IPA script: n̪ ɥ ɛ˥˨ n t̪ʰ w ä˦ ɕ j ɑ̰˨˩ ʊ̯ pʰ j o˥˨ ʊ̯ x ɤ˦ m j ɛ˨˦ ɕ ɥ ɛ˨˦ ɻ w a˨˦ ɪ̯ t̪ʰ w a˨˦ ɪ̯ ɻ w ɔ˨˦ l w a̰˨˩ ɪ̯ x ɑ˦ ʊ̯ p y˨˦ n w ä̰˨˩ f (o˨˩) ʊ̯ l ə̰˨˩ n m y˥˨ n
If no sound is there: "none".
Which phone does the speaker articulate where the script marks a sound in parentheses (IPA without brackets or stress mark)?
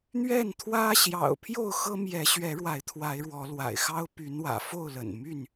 o˥˨